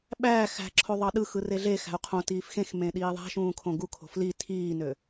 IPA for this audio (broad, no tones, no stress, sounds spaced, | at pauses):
ɓ æː x æ̤ ǁʰ o ðˤ ɑ ɗ ɯ x ɯ r e ɮ e x æ̤ u̯ qʰ õ t iː f x ẽ x m ẽ ɗ iː ðˤ æ̤ ʃ ũː kʰ õ ɡ u kʰ o̤ f l i tʰ iː n ø